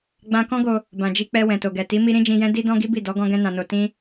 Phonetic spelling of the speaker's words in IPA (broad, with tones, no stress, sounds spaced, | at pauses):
ɡ͡b ã˧ k ɔ̃˦ ɡ o˧ | b ã˨ d͡ʒ i˧ k͡p ɛ˧ w ɛ̃˨ t o˨ ɡ ɛ˨ t i˨˦ m i˦ ɾ ĩ˦ d͡ʒ ĩ˧ j ɛ̃˦ d i˦ d ɔ̃˦ ɡ i˦ b i˦˨ d ɔ˨˦ ɡ ɔ̃˦ ɡ ɛ̃˦ n ã˧ n o˧ t ĩ˦